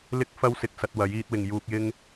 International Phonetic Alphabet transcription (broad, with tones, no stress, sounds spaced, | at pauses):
l ɪ˥ k̚ f ɐ˥ w s ɪ˧ k̚ s ɐ˧ t̚ w ɐ˨˥ j iː˧ t̚ w ɪ˨ ŋ j uː˧ k̚ j ɪ˥ ŋ